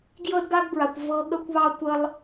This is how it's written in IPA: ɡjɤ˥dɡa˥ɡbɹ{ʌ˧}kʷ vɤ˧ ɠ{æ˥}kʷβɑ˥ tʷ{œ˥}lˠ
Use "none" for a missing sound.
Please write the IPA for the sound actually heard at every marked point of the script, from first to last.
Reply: a˧, ə˥, ə˥

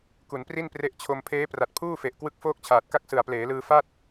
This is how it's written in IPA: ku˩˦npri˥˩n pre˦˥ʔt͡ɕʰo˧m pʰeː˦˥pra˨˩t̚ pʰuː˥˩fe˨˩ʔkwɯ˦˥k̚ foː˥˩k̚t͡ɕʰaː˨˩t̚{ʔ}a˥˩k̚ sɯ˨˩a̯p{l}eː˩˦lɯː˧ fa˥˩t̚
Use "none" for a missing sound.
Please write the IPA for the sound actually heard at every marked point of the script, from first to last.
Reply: k, l

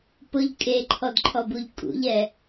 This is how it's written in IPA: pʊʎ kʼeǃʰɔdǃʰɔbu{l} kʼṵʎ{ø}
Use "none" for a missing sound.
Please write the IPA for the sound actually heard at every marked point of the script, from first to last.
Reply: ʎ, ɛ

